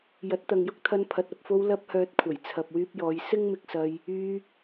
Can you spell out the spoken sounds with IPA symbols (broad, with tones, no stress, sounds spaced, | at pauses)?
j ɐ˨˥ t̚ t̪ ɐ˨ ŋ j ʊ˥ k̚ t̪ʰ ɐ˧ n pʰ ɐ˨ t̚ ɐ˨ p̚ f o˧ w l ɐ˧ p̚ h œː˨ t̚ kʷʰ ɐ˨˩ j t͡sʰ ɐ˨ p̚ w yː˧ p̚ j ɔː˨˧ j s ɪ˥ ŋ m ɪ˧ k̚ s ɐ˧ j | yː˧